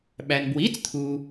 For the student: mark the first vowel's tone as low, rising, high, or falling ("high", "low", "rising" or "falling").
low